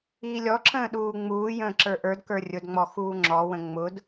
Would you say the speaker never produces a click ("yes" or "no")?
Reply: no